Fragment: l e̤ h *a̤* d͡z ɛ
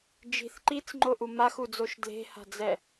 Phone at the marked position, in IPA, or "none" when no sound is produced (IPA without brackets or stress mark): a̤